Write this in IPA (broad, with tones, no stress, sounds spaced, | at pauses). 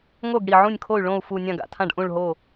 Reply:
ŋ o˥˩ ɡ ɽ i˧˩ ʕ ũ˥˩ nʲ kʰ o˥˩ y̯ ɭ õ˥˩ u̯ f u˧˩ nʲ ã˧˩ ɡ a̰˧˩ tʰ ã˧˩ ɖ ʔ ũ˧˩ ɭ ɦ o˧˩